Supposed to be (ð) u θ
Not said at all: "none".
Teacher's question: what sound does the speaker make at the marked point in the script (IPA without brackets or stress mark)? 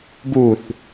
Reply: b